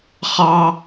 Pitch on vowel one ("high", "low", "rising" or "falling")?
high